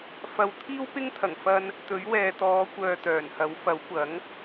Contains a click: no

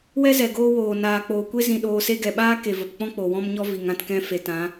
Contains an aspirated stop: no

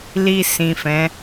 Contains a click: no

